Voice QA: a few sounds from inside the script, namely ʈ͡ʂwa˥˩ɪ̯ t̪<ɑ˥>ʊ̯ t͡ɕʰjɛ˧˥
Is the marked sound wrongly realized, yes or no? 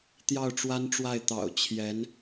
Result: yes